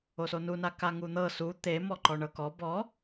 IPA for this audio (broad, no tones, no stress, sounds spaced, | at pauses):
o s o n u n a k a ŋ u n̪ ɤ s u t̪ e m ɔ ǃ ɔ ɳ ɤ k ɔ b ɔ